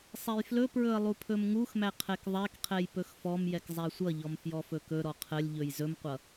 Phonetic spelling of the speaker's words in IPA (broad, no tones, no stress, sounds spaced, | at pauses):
sˤ ɛ j f l ɵ p ɹ ɵ ə̯ lˠ u pʰ ɵ m ŋ u x m æ qʰ ɛ k ðˤ æ k qʰ ɛ j p ɵ x f ɔ m j ɛ k zˤ æ sʷ ʌ ʎ ɔ m f j ɔ f ɵ k ɵ ɾ ɔ qʰ ə lʲ ʎ ɵ j z ɵ m qʷ ʌ